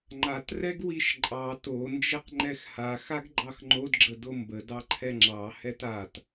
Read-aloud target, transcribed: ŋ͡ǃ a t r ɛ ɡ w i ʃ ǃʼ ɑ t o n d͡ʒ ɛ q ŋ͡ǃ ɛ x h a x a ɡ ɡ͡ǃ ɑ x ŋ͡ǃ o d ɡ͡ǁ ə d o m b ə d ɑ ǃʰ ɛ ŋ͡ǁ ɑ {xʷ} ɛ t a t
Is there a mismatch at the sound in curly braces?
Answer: yes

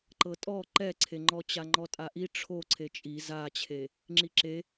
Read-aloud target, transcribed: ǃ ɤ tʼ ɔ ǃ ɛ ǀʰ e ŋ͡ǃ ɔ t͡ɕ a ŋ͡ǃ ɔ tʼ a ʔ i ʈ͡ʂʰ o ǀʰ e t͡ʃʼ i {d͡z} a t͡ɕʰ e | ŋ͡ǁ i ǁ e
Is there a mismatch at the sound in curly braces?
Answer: yes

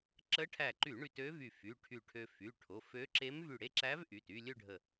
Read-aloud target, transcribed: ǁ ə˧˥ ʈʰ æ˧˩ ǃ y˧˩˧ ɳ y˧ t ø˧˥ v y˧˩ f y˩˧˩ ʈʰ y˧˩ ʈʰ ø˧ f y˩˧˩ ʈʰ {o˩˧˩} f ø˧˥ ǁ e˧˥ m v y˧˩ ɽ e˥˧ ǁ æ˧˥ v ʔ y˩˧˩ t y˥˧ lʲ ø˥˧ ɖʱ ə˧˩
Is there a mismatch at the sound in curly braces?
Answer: no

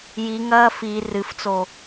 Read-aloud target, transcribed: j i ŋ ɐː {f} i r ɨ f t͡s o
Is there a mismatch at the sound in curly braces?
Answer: no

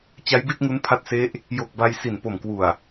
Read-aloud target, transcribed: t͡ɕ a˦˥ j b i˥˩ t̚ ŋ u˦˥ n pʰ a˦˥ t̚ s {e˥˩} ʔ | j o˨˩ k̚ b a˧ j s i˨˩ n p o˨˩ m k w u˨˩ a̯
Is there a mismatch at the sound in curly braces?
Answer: yes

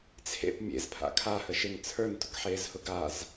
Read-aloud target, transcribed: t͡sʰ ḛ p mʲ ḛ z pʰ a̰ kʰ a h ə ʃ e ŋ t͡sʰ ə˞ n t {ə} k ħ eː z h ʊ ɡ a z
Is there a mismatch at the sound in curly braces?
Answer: yes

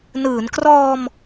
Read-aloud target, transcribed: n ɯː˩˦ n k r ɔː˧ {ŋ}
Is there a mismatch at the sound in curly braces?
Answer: yes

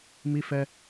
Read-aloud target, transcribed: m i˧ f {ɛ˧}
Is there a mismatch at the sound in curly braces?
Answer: no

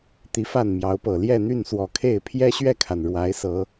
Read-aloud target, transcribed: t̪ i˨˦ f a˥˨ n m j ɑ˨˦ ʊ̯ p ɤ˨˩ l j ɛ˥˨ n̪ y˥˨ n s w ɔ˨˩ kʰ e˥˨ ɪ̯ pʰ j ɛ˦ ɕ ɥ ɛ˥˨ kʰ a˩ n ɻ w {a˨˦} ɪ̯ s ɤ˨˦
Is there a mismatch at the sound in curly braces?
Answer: no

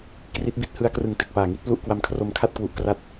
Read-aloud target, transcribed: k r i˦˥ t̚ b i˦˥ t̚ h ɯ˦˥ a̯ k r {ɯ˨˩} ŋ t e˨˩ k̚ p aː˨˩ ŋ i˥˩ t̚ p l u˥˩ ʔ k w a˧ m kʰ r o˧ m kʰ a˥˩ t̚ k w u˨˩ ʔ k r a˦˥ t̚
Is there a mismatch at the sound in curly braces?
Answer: no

